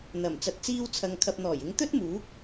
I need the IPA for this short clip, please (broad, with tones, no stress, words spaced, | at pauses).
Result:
n̪ɐ˨˩m t͡sɐ˨t̚t͡siː˧wt͡sʰɐ˨ŋ kʰɐ˨p̚n̪ɔː˨˩jɪ˨˧ŋ t̪ɵ˥t̚muː˨˥k̚